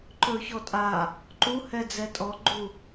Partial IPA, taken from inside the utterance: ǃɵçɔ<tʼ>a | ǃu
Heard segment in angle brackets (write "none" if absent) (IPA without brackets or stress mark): tʼ